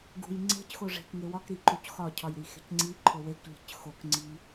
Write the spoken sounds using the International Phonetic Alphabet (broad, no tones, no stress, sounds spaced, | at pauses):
ɡ ṳ j ŋ͡ǀ e̤ c x o ʐ e̤ k ŋ e w ɒ k ɾ i ǃ u c x ɒ cʰ ɒ j ɾ i x e̤ c ŋ͡ǀ i ǃʰ o w e k ʎ e̤ c x o k ŋ͡ǀ i